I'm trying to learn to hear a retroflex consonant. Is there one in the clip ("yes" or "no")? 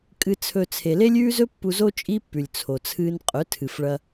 yes